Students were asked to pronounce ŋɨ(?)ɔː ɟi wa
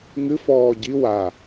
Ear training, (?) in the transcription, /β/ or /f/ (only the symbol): f